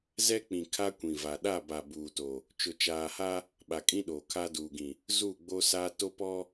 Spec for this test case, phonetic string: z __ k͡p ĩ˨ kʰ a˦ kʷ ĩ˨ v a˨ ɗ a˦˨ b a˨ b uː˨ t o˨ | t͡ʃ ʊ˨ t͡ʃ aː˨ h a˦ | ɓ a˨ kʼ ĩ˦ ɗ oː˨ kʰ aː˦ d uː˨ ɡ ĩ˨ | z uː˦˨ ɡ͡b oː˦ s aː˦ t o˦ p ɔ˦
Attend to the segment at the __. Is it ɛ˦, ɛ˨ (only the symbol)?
ɛ˦